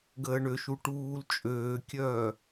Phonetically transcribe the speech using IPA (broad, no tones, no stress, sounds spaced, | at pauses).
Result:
ɡ əː ɳ ø ʃ u ʈ uː l t͡ʃʼ øː kʲ œː